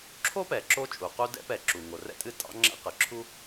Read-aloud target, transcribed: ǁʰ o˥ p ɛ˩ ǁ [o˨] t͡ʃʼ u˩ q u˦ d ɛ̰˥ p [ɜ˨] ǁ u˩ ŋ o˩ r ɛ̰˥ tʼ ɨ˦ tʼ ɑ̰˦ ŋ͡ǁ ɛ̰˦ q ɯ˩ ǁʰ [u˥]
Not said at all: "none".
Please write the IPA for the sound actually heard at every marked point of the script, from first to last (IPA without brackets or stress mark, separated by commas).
o˦, ɛ˨, u˥